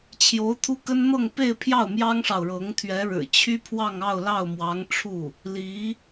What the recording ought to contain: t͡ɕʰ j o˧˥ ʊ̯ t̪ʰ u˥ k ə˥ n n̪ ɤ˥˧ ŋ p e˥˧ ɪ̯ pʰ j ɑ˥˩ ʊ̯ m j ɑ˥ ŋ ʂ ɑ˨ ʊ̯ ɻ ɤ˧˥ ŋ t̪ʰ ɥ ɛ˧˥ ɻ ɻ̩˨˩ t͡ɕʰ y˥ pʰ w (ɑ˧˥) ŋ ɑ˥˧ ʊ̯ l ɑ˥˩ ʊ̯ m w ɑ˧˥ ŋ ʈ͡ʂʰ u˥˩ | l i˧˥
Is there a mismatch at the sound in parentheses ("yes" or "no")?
yes